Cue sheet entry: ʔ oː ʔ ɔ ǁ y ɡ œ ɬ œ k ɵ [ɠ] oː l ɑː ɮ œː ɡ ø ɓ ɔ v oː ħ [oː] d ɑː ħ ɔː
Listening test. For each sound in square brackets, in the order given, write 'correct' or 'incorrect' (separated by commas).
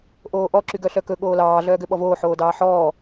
correct, correct